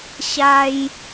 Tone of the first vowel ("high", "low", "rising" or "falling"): high